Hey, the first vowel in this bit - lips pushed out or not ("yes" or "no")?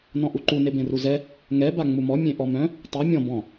yes